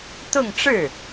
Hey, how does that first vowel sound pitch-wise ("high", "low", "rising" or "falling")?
falling